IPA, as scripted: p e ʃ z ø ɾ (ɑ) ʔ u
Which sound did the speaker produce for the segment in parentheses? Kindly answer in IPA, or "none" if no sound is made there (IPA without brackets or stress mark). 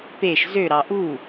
ɑ